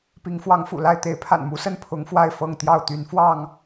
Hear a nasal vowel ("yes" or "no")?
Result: no